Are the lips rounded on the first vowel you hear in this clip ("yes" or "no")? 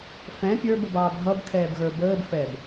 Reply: no